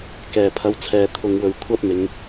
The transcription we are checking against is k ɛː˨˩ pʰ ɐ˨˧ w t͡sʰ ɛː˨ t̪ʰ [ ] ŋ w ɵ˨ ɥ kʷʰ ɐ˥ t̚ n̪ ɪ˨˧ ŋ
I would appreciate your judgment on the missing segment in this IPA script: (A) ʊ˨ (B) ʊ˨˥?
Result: A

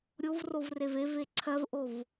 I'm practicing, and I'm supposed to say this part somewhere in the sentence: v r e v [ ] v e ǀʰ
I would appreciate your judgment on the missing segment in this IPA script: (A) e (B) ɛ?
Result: A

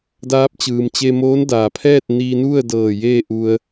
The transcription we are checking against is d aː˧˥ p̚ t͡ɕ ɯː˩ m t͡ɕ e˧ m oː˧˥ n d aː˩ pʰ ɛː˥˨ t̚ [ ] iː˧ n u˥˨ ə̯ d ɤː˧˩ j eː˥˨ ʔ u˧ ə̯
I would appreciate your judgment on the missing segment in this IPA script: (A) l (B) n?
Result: B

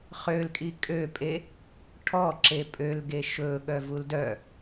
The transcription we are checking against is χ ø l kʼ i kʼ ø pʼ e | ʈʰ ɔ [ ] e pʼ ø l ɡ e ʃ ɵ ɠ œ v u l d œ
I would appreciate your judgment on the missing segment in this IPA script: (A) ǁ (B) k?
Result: A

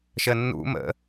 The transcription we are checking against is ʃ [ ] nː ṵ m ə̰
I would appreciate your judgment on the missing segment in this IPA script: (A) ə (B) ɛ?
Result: A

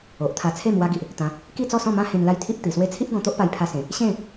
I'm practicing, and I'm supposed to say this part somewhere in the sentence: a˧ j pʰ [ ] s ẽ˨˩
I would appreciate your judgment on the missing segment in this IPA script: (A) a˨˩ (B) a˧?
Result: B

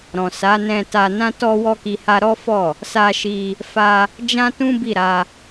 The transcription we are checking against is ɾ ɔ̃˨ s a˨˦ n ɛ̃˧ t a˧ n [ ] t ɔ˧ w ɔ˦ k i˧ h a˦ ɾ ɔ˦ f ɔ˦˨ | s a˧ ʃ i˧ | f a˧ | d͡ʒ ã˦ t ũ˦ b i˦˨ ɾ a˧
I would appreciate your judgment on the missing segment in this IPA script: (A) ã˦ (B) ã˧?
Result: A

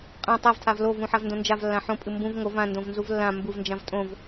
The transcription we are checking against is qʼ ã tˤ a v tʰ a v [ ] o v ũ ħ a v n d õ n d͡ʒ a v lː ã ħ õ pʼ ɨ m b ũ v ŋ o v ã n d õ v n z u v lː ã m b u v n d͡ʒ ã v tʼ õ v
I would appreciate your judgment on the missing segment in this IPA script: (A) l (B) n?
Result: A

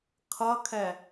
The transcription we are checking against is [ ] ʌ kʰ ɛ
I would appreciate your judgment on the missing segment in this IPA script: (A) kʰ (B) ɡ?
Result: A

